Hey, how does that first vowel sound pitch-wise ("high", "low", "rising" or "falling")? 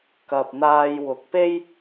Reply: low